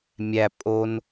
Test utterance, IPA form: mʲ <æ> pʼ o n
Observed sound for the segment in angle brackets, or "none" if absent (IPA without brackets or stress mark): æ